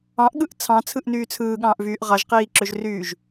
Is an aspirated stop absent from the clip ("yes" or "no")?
no